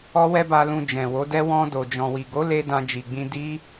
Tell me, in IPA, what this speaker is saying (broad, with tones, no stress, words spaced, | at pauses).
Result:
ɔ˦wɛ˦ba˧lũ˧ d͡ʒɛ̃˨wo˨˦dɛ˦ wɔ̃˧do˨ d͡ʒɔ̃˨wi˨ɡo˨˦le˧ dã˧d͡ʒi˨ɡ͡bĩ˧ di˦